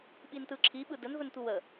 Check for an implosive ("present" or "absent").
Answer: present